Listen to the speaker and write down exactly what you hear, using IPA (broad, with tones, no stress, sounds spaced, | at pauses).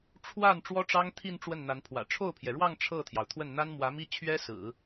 ʈ͡ʂʰ w a˥˩ n ʈ͡ʂ w ɔ˥ ʈ͡ʂ ɑ˥ ŋ t̪ʰ i˥˧ n ʈ͡ʂ w ə˥˩ n n̪ a˧˥ n pʰ w ä̰˨˩ ʈ͡ʂʰ o˥˩ ʊ̯ pʰ j ɛ˩ ɻ w ɑ˥˧ ŋ ʈ͡ʂʰ ɤ˥˩ t̪ʰ j ɑ˩ ʊ̯ t̪ʰ w ə˥˩ n n̪ a˥ n m w ä˧˥ m i˥ t͡ɕʰ ɥ ɛ˥ s ɹ̩˨˩˦